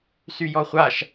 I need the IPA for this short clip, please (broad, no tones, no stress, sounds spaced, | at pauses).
s y j ɔ χʷ a ʃ